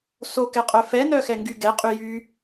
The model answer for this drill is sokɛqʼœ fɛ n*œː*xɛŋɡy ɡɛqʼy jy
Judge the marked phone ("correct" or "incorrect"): incorrect